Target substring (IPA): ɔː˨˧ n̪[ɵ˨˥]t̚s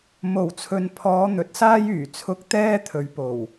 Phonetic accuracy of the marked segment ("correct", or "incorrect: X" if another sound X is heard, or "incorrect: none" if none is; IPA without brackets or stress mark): correct